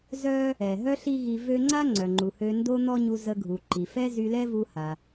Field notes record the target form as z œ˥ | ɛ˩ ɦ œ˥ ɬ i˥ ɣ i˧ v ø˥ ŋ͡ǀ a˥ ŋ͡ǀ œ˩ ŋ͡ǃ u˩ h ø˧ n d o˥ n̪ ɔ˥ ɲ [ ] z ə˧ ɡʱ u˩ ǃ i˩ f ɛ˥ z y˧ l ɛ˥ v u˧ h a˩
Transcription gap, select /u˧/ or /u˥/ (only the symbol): u˧